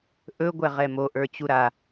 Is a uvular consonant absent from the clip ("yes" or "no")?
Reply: no